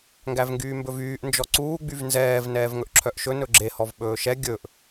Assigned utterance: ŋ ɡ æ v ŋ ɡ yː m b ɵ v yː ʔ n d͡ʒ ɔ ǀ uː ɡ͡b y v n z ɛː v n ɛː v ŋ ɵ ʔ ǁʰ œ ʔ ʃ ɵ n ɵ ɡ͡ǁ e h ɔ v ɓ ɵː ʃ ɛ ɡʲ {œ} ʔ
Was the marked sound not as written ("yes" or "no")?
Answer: yes